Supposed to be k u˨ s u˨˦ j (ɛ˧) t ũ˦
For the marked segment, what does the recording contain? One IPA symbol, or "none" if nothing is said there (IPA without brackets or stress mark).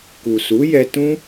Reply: ɛ˧